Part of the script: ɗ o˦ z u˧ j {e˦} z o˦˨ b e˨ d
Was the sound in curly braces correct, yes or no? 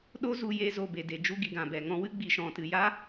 no